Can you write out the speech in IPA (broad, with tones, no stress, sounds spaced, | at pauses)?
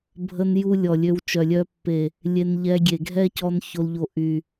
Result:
bʱ ə˧ n j u˦ lʲ ɔ˨ lʲ ø˧ w t͡ʃ œ˨ lʲ œ˧ pː e˨ | lʲ e˧ n ʎ ɛ˧ ɡʲ e˨ ɡʱ ɛ˦ c ɔ˧ n ç o˧ l ʎ o˧ ʔ y˨